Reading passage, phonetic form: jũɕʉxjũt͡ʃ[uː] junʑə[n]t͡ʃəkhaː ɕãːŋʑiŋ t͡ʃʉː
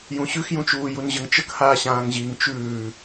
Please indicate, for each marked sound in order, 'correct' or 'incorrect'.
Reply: correct, incorrect: ŋ

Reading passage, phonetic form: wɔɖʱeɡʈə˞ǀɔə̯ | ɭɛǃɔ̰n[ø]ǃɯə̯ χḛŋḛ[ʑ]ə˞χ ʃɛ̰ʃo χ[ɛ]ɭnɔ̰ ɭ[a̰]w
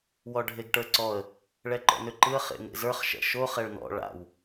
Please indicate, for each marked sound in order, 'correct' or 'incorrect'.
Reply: correct, incorrect: z, correct, correct

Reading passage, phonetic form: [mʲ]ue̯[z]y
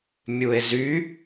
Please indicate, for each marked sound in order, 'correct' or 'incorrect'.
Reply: correct, correct

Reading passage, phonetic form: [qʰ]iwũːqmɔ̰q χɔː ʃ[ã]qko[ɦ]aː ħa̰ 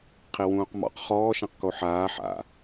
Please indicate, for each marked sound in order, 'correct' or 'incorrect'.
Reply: correct, correct, incorrect: ħ

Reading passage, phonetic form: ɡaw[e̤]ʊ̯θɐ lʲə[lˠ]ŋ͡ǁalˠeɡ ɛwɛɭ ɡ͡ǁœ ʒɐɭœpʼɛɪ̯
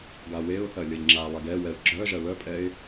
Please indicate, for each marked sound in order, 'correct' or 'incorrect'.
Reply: incorrect: e, incorrect: ʎ

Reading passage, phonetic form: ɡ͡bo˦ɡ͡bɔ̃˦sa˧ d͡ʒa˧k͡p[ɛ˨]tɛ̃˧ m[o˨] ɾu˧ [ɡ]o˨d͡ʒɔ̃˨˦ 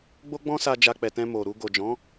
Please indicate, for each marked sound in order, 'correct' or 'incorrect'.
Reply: correct, correct, correct

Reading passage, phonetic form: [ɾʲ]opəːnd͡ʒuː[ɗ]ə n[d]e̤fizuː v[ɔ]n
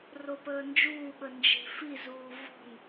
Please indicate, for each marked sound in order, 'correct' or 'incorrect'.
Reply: incorrect: r, incorrect: ɓ, incorrect: d͡ʒ, incorrect: ɔ̤

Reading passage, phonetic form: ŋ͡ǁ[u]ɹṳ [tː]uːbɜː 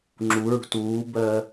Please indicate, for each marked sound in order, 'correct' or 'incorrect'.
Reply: correct, incorrect: t

